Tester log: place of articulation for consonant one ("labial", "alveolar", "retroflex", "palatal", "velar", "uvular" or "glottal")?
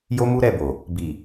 palatal